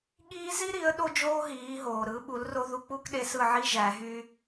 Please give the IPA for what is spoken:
ɠ iː˥ z i˥ ɾ i˩˥ ə̯ ɗ o˥ d͡ʒ oː˥ ɦ iː˩˥ ɦ oː˩ ɾ ɯ˩˥ ɓ u˩˥ l r o˥ ð u˧ k͡p u˥ k ɗ e˧ s ɯ˥˩ ʕ i˥ ʒ æ˩˥ ɦ y˥

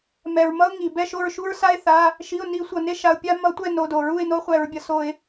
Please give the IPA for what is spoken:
m ɛ˩ ɹ m ʌ˦ ʊ̯ ŋ i˩ b ɛ˦˨ ʃ o˦˨ ɹ ʃ u˦ ɹ s a˦ ɪ̯ θ a˩˧˩ | ʃ i˩˧˩ ʊ̯ n i˧˩˧ sʷ ʌ˩ n e˦ ʃ a˩˧˩ ʊ̯ pʲ a˦ m ʌ˧˩˧ tʷ ɛ˦˨ n o˩˧˩ d o˩ ɹ u˦˨ ɪ̯ n o˦ χʷ ɛ˧˩˧ ɹ bʲ ʌ˩ s o˧˩˧ ɪ̯

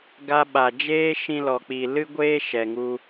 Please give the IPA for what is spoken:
ɡ a˧ ɓ a˨ d͡ʒ eː˦ ʃ ĩ˧ l ɔ˨ k͡p i˨ l ɨ˦ ɡʷ eː˦ ʃ ɛ˨ ŋ u˧

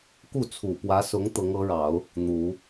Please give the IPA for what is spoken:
k u˥˩ t͡sʰ u˨˩ p w ä˧˥ s ʊ˧˥ ŋ t̪ ɤ˧˥ ŋ ɤ˧˥ ɻ ɑ˨˩˦ ʊ̯ | n̪ u˨˩˦

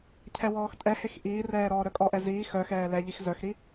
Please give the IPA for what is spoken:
cʰ ɛ w ɔː x tʼ ɛ h e x ʔ iː r ɛː ɾ ɔː ɾ œ kʼ ɔ ʔ ɛ z iː x œ x ɛː l ɛ ʎ i x z œ x ɾ i

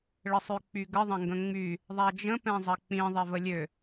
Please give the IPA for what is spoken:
ɭ ə sˤ ø k͡p y ɡ ə ðˤ ɐ̃ ŋ ɡ ə̃ ŋ͡m y | ðˤ a d͡ʒ ə̃ p ɛ̃ zˤ ɐ k͡p ĩ ðˤ ɛ v ə lʲ ø

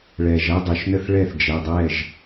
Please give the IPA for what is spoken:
ɭ ɛ˩ ʒ ɐ˥˧ dˤ ʉ˩ ʃ n ə˥˧ θ ɭ ɛ˥˩ θ d͡ʒ ɛ˩˧˩ dˤ ɛ˥˩ ʒ

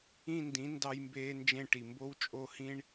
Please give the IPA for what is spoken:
ĩ˥˧ n d ĩ˨˥ n d ɑ˥ j m b eː˥ n d͡ʒ ẽ˥˧ ʈ i˨ m b o˥ w t͡ʃʼ o˥˧ h ĩ˥ ɳ

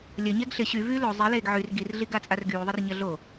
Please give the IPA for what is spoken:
lʲ ɐ ɲ ɛ ɡ ɬ ɪ ɕ y v yː l o zˤ i l eː ɡ ʕ y r ɡ i r ɮ i ɡ a t͡sʼ a r ɡ yː ðˤ i r ɲ ɐ ɮ o

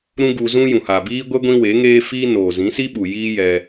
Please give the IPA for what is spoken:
ɾ ũ˦ ɡ u˧ z ũ˦ j ũ˨ h aː˨ b iː˦ ɡʷ ɛ˦ ɡʷ ĩ˦ w e˨˦ ŋ eː˦ f iː˦ n oː˨ z ĩ˨˦ s i˦ ɓ u˨ j iː˦ j ɛ˧

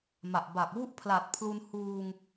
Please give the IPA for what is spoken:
m a˨˩ ʔ b a˨˩ k̚ w u˦˥ ʔ pʰ l a˨˩ t̚ pʰ l u˧ n h uː˧ ŋ

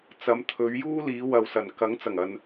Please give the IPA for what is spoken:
t͡s ɐ˨˧ m t̪ʰ ɵ˨˧ ɥ j uː˥ l iː˨˧ w ɐ˨ w s ɐ˨˩ n k ɐ˨˥ ŋ t͡s ɐ˨˩ ŋ ɐ˧ n

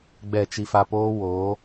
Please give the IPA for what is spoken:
ɡ͡b ɛ˦˨ t͡ʃ i˧ f a˧ p oː˦ w oː˨˦

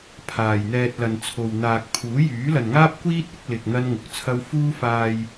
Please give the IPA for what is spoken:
pʰ aː˨ j n̪ ɛː˧ t̚ l ɐ˨ n t͡sʰ o˨ w n̪ aː˨ k̚ pʰ uː˨˥ j yː˨˥ l ɐ˨ n ŋ aː˥ p̚ kʷ iː˥ t̚ ɪ˨˥ k̚ l ɪ˨ k̚ n̪ ɐ˥ n ŋ ʊ˨ k̚ t͡sʰ ɐ˥ w f uː˥ f aː˧ j

